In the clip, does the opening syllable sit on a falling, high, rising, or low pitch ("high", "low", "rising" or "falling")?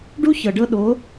high